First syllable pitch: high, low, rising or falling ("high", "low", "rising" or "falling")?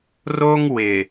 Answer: high